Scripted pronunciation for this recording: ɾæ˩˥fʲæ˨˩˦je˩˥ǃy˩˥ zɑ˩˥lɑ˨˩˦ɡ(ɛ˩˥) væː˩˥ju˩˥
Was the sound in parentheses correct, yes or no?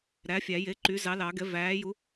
yes